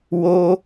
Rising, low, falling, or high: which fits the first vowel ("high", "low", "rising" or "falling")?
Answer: high